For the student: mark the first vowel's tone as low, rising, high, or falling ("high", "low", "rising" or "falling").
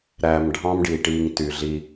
low